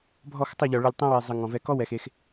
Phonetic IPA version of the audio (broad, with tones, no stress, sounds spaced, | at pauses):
bʱ ɔ˦˨ x tˤ ə˦˨ ʎ ɔ˨ ɭ ə˧ lʲ tˤ ɛ̃˦ w e˧ zˤ ə˧ ŋ ɔ̃˨ v ɛ˧ k ɔ˦ w ɛ˨ x e˦ x